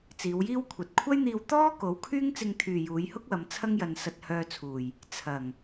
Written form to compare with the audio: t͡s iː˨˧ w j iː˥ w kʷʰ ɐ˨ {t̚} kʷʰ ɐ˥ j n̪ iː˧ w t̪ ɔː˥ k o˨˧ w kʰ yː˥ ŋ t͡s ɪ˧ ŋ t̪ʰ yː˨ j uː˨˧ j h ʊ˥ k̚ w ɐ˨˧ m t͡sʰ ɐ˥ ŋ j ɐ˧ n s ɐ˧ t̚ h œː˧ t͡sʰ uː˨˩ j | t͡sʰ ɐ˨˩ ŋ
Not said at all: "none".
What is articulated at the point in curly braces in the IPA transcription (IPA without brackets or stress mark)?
t̚